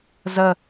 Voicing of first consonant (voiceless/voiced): voiced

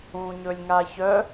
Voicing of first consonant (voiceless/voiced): voiced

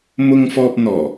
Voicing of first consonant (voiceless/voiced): voiced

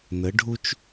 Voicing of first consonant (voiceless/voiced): voiced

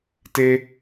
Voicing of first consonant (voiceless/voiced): voiceless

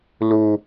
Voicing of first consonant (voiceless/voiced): voiced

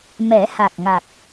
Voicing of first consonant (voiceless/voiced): voiced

